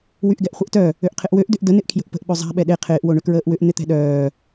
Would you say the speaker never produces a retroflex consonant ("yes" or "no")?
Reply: no